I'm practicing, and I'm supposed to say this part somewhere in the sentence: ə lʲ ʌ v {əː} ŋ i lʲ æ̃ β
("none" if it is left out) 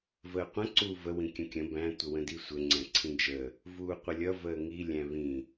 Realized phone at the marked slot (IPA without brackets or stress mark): əː